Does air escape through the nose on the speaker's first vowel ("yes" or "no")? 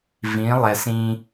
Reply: yes